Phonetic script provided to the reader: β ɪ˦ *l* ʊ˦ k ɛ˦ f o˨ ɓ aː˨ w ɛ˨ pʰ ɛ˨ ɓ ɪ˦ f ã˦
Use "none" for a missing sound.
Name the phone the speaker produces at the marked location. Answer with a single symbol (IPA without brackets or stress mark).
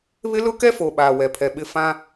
l